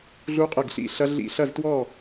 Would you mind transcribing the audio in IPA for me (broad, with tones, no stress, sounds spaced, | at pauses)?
ɮ u˥ qʼ ɘ˥˧ ɡ ɬ ḭ˥˧ ɬ ɐ˥ ɮ ḭ˥˧ ɬ ɐ˥˧ z t w ɔ˥˧